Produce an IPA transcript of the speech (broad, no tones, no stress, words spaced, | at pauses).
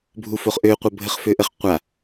bʱufoχʔø qʷəbʱəχføʔəχ qʷa